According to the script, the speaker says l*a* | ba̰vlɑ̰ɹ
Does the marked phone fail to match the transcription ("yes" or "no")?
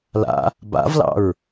yes